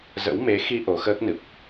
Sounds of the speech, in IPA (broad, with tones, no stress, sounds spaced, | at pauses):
z ə̰˧˥ w m e˨˦ x i˧ ʔ o˨˦ x əː˦˥ k̚ n ɨ˨˩ p̚